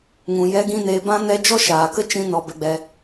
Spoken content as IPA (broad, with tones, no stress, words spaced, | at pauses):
ŋũ˨ jɛ˦ɡĩ˦neː˧ bã˦ nɛ˦ d͡ʒɔ˦ʃaː˨kə˦ t͡ʃĩ˦nɔ˧ bɛ˧ɡ͡bɛ˧